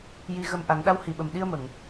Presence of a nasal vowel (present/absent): absent